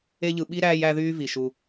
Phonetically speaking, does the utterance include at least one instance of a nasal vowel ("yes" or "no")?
no